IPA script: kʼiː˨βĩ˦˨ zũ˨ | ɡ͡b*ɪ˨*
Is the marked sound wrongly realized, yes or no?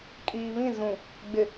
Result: no